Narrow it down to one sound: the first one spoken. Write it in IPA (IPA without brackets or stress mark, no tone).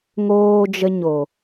ŋ